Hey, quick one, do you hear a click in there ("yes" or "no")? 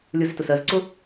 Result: yes